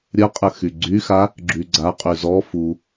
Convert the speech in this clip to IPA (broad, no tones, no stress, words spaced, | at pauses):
ɾʲəqʼəxy ɡ͡ǀyxa | ɡ͡ǁyɡ͡ǀa qʼyzɔ fu